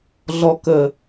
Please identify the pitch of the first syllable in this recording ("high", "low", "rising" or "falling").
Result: low